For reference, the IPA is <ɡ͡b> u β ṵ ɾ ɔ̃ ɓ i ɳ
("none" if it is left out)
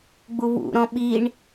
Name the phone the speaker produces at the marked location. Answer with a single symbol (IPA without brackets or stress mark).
ɡ͡b